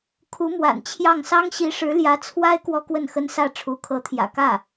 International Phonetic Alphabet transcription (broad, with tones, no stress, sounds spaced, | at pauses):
kʰ u˧˥ m w a̰˨˩ n t͡ɕʰ j ɑ˥˩ ŋ s ɑ˥ ŋ ɕ i˧˥ ʂ ɻ̩˧˥ l j ä˧˥ t͡sʰ w a˥ ɪ̯ k w ɔ˥ k w ə˥˩ n x ə˥ n s ä˥˩ ʈ͡ʂʰ u˧˥ kʰ ɤ˧˥ t̪ʰ j ä̰˨˩ k ä˥˩